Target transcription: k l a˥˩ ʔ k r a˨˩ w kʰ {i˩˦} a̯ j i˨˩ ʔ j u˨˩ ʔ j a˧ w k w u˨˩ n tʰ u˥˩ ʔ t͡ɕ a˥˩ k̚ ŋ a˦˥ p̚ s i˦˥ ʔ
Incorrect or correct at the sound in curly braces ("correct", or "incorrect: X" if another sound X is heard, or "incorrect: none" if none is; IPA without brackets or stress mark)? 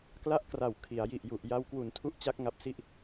correct